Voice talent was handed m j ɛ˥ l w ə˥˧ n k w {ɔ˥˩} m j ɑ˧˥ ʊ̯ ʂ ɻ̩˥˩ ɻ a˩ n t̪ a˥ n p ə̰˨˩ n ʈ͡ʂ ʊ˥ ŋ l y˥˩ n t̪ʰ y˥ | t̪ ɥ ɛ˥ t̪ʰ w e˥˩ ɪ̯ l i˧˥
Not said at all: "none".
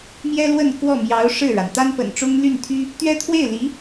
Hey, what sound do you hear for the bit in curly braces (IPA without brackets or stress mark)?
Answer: ɔ˥˩